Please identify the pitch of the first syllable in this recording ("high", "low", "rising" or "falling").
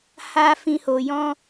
high